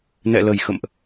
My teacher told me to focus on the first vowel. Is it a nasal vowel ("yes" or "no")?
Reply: no